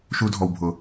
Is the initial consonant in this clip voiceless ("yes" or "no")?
yes